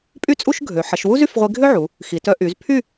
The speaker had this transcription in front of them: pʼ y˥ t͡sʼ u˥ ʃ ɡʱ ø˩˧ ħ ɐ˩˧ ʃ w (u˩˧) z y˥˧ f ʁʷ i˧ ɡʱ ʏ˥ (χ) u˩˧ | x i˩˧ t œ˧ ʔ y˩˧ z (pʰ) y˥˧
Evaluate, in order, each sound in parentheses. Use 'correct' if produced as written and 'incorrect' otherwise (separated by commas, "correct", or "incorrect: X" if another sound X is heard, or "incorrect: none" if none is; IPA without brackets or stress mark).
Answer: incorrect: u˥, incorrect: ʕ, correct